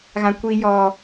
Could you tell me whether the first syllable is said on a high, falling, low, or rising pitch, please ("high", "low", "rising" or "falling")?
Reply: high